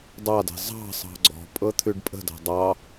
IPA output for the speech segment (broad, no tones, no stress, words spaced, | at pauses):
dˤɑdɛ̤ zˤɑ̤ sˤɑ̤ɡ͡ǀɔ̤ pʼɤt̪ʰʉɖpʼə̤dɑ̤ dˤɑ